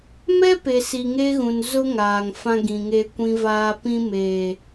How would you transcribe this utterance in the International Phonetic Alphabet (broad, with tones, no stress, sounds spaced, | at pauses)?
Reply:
m ɛ˦ p e˨ s i˨ ŋ e˦ ɣ ũ˨ n z ʊ˦ ŋ aː˨ ŋ f ã˦ ɡ ĩ˨ ŋ e˦ kʷ ĩ˦ v aː˦ p ĩ˦ m eː˨